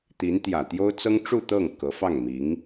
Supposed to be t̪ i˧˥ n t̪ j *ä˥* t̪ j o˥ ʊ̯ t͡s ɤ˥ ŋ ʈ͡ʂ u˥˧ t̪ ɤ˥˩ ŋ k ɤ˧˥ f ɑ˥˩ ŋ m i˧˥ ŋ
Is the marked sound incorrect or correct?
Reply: incorrect